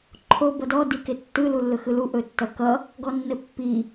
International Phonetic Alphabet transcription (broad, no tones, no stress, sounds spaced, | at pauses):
ǃʰ o b ʌ d ɔ d i k e tː ɯ l u lː ɵ x ɯ l u ʔ ɵ tː ʌ k ʌ | ɡ ɔ nː ɘ pː i